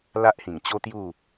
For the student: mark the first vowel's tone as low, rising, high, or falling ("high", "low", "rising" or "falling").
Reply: high